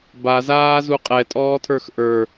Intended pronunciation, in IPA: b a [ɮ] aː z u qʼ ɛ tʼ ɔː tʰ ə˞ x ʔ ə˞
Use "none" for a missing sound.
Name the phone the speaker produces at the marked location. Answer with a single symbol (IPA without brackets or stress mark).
z